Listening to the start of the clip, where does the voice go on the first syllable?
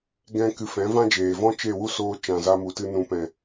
high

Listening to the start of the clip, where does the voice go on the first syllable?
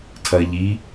low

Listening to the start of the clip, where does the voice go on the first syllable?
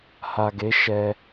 low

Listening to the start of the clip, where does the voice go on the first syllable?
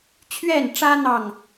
falling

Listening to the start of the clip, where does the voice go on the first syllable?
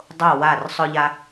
falling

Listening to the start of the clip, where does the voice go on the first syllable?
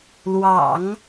low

